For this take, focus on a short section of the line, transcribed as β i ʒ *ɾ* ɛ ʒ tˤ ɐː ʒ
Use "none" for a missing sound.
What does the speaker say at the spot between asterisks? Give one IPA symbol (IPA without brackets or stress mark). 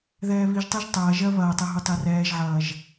tˤ